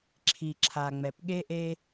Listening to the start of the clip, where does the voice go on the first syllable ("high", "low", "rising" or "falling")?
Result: low